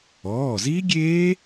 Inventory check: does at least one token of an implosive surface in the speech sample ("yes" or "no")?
no